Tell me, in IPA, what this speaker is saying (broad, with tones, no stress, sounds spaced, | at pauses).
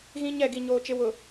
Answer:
ɣ ĩ˦ ɲ ɛ˦˨ ɡ i˨ ɲ oː˨ t͡ʃ ɪ˨ w ʊ˨